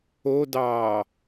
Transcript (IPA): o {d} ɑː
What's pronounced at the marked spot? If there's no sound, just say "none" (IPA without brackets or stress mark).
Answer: d